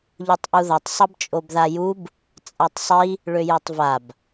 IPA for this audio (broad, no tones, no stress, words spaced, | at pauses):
ʎutˤʔuðʌtˤ sˤʌbt͡ʃʼobðajub | t͡sʼatˤsˤi | ɭøjøtˤvab